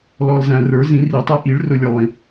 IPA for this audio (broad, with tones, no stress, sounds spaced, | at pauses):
l ɔ˨ l z æ̃˨ r ə˞˨˩˦ z ĩ˨˩˦ r i˨˩˦ tˤ ɛ˧˥ ʔ i˨˩˦ ɭ r ʊ˨ lʲ ə˞˨ lˠ ĩ˨˩˦